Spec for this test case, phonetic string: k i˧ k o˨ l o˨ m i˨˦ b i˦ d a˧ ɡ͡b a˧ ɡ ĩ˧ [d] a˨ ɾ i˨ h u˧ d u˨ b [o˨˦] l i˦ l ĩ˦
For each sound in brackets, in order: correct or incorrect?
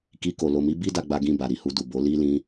incorrect: b, correct

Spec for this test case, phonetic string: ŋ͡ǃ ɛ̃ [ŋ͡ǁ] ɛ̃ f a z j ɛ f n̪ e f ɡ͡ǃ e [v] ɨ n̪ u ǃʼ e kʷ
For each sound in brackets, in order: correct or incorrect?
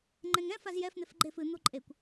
incorrect: ŋ, incorrect: f

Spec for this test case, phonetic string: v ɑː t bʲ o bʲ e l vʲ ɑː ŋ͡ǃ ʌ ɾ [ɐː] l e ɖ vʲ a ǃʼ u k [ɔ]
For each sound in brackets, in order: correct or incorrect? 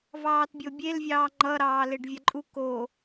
incorrect: ɑː, incorrect: o

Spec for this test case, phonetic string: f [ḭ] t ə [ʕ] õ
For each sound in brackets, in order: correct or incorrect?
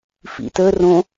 correct, incorrect: r

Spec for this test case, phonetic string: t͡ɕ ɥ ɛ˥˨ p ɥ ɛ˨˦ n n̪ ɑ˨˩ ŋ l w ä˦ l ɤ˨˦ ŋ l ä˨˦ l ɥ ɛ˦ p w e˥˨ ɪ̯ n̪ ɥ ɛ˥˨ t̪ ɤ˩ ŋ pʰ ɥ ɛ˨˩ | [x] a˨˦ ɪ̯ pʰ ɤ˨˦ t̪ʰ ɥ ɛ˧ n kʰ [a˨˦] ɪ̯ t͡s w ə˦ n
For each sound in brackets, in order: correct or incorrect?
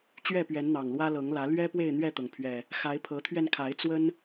correct, correct

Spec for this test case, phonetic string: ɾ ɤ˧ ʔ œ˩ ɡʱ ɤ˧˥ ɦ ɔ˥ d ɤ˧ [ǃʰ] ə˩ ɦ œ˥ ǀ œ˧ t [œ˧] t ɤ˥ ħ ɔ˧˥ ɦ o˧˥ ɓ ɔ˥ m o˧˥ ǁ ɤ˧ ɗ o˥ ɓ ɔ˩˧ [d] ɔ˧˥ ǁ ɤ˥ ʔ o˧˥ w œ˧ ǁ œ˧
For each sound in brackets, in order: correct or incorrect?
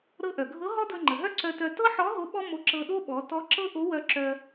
incorrect: ŋ͡ǃ, correct, incorrect: t

